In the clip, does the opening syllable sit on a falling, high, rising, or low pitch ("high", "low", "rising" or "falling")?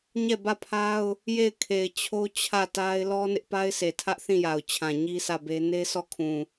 falling